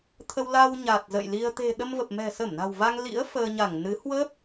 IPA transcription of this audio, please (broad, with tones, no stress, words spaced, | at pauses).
t̪ʰə˧w la˧w ɲa˨˩t̚zə̰˧˨jli˧ə̯ t̪e̤˨˩ ɗə˧mvə˨˩p̚ mɛ̤˨˩sə˧˩mna̤˨˩w va˧ŋlḭ˧˥ə̯ fəː˧ɲa˧˩ŋnɨ˨˦ hwəː˦˥p̚